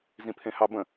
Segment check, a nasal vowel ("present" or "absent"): present